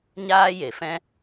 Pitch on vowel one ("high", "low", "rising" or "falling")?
high